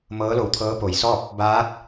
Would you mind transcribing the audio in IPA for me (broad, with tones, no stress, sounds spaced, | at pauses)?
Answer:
m ɤː˧˥ l o˧˩ w t̪ʰ ɤː˧˥ p o˩ j s ɔː˥˨ p̚ | b aː˧˥ t̚